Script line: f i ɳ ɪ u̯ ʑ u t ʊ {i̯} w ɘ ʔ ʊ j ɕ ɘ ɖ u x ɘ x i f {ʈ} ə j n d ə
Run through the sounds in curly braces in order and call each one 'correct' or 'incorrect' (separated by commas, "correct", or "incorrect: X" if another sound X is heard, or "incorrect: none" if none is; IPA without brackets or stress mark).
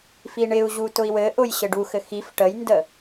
correct, correct